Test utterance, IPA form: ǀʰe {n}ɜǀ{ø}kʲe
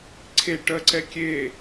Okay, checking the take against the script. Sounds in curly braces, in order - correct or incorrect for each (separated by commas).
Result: incorrect, incorrect